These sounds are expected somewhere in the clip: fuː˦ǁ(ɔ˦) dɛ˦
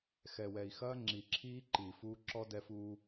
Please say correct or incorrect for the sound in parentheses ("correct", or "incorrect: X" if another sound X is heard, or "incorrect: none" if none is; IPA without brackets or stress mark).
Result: correct